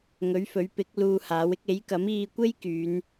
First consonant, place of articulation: velar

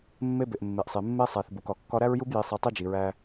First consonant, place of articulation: labial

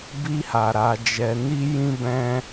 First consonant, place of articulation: labial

